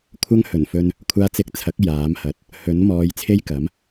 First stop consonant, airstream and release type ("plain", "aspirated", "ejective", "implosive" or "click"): aspirated